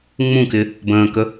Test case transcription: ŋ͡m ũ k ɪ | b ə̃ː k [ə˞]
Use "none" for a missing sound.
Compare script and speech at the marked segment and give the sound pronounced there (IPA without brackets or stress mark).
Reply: ə